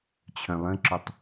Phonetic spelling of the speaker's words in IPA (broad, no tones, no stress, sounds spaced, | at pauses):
t͡ɕʰ œ̃ lˠ ə̃ ǁ ʊ tˤ